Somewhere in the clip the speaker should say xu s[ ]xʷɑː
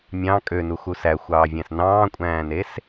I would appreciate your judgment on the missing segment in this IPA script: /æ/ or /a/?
æ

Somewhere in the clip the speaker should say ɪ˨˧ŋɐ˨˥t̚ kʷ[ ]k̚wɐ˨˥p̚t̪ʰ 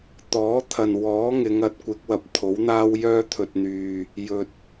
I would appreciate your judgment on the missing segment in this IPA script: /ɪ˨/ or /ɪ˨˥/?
ɪ˨˥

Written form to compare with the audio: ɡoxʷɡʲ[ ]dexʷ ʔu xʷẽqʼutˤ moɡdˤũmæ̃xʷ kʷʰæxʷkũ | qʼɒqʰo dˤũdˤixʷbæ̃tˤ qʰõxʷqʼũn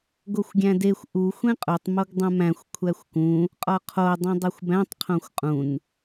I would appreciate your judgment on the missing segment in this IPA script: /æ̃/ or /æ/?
æ̃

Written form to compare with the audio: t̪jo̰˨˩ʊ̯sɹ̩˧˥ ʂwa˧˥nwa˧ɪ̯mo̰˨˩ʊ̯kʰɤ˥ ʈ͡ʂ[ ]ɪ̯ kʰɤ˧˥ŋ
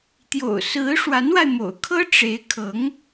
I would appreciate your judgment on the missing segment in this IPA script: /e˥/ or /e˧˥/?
e˧˥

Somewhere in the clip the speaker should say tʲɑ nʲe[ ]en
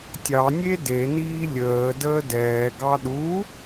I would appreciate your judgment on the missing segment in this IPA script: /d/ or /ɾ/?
d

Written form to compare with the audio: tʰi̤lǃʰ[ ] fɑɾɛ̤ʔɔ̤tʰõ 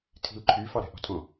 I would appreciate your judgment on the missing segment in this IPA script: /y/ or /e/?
y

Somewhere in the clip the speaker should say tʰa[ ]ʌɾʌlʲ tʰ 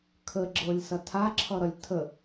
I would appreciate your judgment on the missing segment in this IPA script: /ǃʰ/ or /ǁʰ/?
ǁʰ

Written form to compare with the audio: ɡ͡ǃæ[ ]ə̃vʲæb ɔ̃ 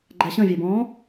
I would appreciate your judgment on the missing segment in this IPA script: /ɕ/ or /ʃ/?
ɕ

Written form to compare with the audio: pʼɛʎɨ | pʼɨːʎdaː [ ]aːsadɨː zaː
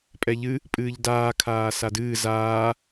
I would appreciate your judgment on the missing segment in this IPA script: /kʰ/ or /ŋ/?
kʰ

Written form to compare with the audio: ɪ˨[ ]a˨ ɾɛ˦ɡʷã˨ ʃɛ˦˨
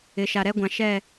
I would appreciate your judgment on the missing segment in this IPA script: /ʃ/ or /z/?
ʃ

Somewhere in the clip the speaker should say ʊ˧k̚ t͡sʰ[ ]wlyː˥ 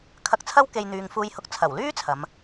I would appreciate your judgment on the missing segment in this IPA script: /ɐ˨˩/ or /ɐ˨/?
ɐ˨˩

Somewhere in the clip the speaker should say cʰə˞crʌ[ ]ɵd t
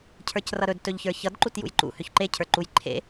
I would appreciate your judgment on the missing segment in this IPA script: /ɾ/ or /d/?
ɾ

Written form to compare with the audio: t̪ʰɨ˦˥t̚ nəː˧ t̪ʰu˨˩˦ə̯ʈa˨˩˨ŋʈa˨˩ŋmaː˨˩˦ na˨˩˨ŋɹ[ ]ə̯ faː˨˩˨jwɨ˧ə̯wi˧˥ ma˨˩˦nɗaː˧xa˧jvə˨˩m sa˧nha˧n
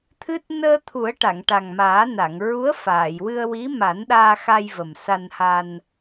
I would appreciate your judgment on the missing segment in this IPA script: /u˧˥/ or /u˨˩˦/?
u˧˥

